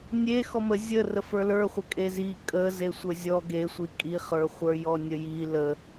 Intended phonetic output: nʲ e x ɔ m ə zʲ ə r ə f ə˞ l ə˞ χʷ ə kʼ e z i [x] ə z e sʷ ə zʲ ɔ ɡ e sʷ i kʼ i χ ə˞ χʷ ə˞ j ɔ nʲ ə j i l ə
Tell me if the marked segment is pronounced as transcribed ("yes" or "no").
no